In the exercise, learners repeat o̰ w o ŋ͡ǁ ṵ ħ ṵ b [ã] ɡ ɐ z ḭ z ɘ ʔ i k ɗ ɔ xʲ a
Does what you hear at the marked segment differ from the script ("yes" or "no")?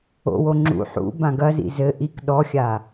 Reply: no